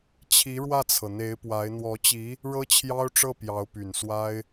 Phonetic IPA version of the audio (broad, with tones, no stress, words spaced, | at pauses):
t͡ɕʰi˧˥ɻwä˥˩t͡sʰɤ˩ n̪e˧˥ɪ̯pwa˧˥ɪ̯ n̪wɔ˧˥t͡ɕi˧˥ | ɻɤ˥t͡ɕʰjɑ˥ʊ̯ʈ͡ʂɤ˥˩ pjɑ˧˥ʊ̯py˨˩nswa˥ɪ̯